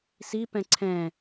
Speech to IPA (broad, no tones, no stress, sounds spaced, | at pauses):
s i p ɛ̃ ǀʰ ɛ̃